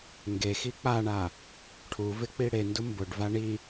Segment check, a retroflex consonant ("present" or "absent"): present